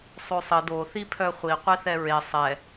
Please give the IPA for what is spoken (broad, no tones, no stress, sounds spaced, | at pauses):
sˤ o sˤ ə d o θ i pʰ œ χʷ i qʷ i θ ɛ ɹ e sˤ ɛ